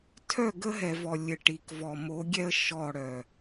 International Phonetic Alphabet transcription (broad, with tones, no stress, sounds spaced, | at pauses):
tʰ œ˦˨ ɡ ə˦ ɦ ɛ˨ v ɔ˨ lʲ ɘ˨ ʈ i˨ k v ɔ˨ m o˨˦ ɡʲ ɛ˦ ə̯ ʃ ɔ˦˨ ɽ œ˨